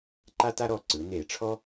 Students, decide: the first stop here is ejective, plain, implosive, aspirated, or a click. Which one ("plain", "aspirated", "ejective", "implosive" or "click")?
click